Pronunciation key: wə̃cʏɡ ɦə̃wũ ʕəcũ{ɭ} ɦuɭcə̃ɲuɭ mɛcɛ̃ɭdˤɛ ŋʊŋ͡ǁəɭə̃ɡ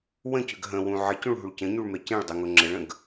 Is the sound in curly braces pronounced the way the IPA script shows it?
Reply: yes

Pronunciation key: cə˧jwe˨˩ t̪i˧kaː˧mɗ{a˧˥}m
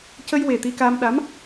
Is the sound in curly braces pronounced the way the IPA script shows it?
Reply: yes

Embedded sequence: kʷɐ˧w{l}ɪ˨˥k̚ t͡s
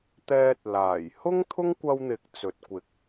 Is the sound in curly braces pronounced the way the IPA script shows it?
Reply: no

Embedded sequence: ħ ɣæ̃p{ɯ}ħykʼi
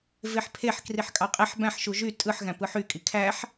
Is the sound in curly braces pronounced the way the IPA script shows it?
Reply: yes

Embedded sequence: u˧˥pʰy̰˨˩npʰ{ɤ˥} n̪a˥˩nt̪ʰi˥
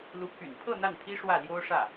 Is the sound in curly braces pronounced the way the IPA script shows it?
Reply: no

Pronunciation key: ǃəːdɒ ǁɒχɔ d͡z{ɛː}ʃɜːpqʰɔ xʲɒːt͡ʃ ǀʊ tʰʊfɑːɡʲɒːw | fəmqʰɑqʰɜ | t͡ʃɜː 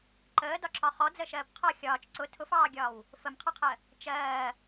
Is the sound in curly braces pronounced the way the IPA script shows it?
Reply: no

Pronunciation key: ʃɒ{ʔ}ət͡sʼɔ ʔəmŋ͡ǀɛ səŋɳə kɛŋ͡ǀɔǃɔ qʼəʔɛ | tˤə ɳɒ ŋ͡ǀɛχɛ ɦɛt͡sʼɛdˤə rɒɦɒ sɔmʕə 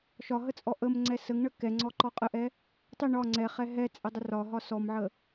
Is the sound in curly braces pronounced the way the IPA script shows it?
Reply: no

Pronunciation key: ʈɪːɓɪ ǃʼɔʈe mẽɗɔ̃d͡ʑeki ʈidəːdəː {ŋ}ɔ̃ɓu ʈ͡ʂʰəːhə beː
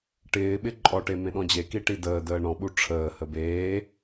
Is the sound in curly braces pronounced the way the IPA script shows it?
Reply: no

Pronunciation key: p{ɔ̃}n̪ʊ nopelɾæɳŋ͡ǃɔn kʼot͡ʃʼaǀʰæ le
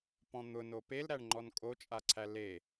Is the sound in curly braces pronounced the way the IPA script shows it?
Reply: yes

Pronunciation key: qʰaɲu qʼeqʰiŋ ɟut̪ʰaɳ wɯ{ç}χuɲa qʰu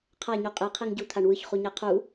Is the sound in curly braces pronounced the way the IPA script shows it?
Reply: yes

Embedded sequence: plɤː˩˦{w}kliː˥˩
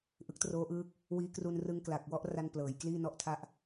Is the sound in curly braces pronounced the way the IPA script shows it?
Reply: no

